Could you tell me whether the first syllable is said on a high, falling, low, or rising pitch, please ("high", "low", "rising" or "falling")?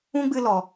high